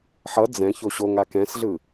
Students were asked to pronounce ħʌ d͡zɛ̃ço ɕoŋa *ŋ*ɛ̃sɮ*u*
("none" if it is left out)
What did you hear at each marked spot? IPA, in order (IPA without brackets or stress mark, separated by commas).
k, ɯ